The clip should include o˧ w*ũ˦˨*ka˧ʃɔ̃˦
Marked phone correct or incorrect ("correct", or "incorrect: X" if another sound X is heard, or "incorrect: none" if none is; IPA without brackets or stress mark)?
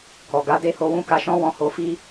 incorrect: ũ˦